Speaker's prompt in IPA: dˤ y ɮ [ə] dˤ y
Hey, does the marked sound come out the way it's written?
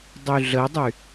yes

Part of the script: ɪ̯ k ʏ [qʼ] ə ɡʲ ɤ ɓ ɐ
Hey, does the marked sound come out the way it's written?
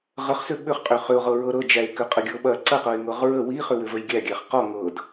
yes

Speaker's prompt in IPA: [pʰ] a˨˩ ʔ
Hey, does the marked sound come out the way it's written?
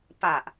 no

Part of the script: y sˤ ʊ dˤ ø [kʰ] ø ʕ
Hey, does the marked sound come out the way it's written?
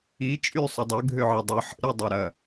no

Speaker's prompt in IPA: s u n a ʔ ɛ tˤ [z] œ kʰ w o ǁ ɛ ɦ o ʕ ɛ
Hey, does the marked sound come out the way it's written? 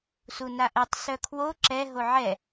no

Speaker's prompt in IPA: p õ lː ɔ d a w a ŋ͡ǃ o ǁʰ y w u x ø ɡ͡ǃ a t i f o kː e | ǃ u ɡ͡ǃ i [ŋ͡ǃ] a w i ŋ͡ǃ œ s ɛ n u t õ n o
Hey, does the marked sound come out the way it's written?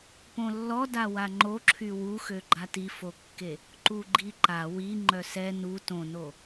no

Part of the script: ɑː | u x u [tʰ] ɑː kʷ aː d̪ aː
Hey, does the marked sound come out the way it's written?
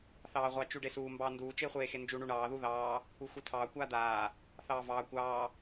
yes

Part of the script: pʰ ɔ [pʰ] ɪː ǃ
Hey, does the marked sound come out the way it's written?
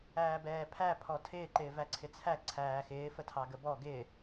no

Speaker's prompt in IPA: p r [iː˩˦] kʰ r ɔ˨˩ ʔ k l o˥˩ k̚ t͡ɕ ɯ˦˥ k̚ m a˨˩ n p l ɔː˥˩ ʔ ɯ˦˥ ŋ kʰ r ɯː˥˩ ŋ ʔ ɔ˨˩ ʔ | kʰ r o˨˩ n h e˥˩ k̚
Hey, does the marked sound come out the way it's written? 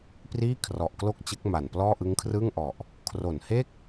no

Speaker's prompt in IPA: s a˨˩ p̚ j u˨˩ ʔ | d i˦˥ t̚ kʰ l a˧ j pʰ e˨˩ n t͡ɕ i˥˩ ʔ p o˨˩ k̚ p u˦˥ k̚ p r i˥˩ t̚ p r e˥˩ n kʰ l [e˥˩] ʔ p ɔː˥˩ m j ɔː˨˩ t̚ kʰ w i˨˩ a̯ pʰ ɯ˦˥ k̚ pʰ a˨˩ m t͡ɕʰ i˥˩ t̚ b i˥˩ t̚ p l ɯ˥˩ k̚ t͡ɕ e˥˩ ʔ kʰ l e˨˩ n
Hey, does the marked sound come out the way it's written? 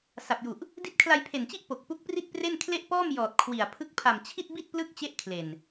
yes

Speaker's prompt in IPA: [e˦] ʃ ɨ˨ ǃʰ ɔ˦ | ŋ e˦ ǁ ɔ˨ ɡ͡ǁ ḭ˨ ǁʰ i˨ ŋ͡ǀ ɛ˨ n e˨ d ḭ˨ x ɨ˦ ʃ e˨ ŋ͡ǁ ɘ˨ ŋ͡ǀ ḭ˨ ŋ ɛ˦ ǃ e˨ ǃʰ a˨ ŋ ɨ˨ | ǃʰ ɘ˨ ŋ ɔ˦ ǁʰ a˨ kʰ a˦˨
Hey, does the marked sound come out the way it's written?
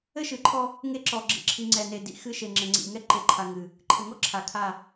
no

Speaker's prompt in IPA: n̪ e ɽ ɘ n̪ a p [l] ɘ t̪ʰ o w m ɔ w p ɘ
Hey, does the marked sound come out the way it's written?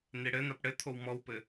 no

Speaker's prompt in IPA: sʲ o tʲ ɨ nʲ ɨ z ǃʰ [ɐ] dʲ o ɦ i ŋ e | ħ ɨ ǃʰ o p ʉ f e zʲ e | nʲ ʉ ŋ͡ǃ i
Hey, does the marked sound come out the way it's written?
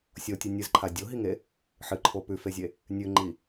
no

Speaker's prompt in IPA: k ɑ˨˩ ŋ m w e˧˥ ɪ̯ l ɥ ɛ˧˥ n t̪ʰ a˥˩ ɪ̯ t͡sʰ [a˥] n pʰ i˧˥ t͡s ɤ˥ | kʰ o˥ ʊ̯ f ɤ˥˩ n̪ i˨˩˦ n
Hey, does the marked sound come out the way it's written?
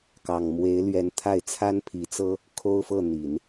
yes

